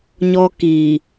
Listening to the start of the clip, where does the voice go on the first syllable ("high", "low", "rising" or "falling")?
high